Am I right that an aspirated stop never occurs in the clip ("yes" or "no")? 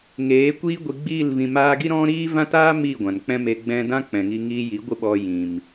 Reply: yes